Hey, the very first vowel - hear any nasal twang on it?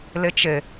no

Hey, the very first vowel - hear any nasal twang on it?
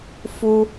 no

